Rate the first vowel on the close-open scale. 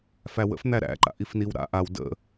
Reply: open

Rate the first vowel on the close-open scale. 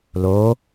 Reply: mid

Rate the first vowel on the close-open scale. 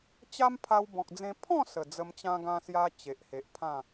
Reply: open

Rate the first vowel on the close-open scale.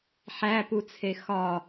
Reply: open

